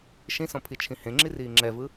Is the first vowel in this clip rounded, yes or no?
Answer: no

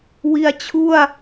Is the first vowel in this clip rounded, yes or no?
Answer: no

